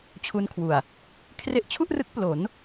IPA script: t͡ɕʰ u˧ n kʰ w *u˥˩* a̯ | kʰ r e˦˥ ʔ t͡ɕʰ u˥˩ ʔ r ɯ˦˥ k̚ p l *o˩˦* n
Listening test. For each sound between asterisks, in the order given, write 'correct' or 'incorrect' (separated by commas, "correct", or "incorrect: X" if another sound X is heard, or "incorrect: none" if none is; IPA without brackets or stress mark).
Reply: incorrect: u˨˩, correct